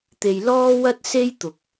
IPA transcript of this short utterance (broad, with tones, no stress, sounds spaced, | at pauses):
t̪ e˨ j l ɔː˥ w ɐ˥ t̚ s e˥ j t̪ ʊ˨ k̚